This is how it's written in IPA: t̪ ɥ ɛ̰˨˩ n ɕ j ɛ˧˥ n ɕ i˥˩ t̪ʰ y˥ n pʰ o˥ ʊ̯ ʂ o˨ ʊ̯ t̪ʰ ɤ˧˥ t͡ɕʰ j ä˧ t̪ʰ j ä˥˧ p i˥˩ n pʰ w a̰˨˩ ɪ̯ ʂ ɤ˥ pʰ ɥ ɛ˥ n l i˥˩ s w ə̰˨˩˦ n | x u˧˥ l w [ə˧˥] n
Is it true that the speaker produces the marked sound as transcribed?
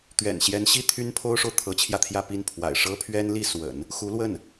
no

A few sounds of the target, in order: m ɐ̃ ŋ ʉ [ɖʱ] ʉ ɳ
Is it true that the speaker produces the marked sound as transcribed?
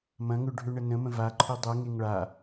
yes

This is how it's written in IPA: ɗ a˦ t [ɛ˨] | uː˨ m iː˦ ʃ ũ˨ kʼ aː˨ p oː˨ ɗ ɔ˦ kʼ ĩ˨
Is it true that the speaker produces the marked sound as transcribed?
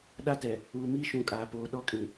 yes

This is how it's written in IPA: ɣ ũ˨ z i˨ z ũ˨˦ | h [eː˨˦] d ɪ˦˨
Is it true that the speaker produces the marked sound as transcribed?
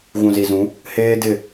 no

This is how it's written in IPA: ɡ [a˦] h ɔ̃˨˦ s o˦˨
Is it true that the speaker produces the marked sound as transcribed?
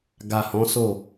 no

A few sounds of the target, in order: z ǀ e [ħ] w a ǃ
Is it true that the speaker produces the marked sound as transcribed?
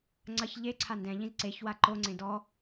no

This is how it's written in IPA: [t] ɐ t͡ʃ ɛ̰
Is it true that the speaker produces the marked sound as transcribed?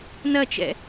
no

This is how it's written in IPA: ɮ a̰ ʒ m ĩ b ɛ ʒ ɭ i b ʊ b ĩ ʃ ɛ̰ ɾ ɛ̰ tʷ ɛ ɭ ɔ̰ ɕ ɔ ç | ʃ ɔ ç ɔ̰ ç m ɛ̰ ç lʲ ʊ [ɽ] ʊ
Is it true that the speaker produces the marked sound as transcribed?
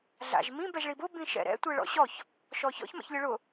no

